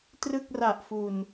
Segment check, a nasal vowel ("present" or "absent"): absent